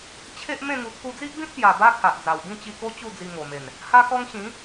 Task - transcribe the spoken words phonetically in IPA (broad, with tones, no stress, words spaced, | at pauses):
t͡ɕʰe˦ʔmẽ˥˧ŋu˧ t̪ʰu˧d͡zi˦ʔbĩ˦t̚pja˨˩ ba˦kʰa˨ʔd͡za˨˩w bĩ˥˧t͡ɕi˧ko˦ t͡ɕu˥˧d͡zi˧ŋo˨˩me˨˩n | ha˦kɔ˦ŋ ɕĩ˨˦